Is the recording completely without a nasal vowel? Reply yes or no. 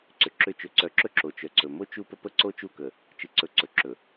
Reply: yes